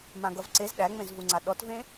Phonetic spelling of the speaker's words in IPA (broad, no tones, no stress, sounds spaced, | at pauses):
m ã ɡ ʌ v ǀ e z ɗ æ ŋ͡m ẽ z v u ŋ͡ǀ a ɗ ɔ t v ẽ